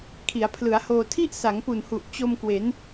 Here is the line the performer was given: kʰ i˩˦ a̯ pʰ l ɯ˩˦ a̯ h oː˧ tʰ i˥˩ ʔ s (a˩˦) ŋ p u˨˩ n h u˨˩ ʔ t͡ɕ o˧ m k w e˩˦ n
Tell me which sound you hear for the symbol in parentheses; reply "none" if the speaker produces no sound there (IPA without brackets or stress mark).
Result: a˩˦